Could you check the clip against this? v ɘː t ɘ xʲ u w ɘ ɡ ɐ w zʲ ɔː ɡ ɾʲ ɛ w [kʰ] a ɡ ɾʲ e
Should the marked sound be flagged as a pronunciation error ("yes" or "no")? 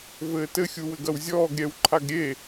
yes